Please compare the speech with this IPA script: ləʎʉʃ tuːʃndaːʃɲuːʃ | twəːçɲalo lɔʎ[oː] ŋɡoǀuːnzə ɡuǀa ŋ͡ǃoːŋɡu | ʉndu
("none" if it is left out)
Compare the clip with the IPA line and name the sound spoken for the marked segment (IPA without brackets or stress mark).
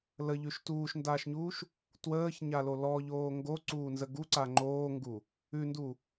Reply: oː